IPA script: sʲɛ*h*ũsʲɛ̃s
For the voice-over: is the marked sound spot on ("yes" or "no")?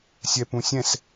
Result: no